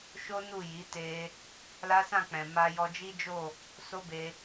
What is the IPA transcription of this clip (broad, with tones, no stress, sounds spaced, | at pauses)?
ʃ o˦ n u˦˨ j i˨˦ t e˧ | l a˦ s ã˦˨ k͡p ɛ̃˨ m a˧ j ɔ˧ d͡ʒ i˦ d͡ʒ o˦˨ | s o˦ b e˧